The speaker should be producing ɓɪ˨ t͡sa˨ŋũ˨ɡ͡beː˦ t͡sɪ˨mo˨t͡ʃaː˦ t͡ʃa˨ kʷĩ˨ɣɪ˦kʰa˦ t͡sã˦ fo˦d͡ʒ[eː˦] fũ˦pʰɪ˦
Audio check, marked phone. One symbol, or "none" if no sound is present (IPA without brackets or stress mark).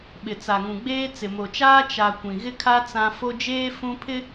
eː˦